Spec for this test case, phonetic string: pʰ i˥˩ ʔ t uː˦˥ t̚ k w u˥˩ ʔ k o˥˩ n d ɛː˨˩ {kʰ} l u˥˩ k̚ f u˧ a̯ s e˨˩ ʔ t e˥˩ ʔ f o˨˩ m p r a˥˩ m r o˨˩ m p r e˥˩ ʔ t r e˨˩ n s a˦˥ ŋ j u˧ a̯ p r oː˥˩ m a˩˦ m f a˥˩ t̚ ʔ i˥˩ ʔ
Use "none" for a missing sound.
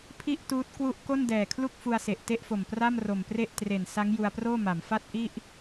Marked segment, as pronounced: kʰ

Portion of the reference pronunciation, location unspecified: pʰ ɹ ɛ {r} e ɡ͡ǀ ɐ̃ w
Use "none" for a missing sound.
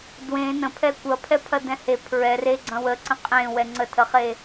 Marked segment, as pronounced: r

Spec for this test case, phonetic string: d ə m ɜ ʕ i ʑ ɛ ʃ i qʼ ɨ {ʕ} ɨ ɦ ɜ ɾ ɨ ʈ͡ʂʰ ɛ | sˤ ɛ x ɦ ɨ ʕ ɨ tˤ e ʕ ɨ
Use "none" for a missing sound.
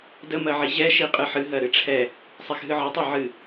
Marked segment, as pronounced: ħ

